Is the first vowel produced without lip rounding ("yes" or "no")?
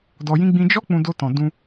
no